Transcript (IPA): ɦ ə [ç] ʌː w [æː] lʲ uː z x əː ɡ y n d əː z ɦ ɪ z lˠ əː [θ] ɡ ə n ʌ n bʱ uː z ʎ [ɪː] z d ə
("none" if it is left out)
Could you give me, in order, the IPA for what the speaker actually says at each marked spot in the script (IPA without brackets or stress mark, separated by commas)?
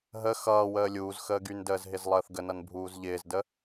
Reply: x, əː, θ, ɪː